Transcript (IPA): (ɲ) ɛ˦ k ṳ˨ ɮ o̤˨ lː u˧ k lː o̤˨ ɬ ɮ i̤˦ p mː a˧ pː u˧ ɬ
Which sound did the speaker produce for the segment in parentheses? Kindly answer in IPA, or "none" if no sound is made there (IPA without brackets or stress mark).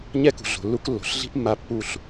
ɲ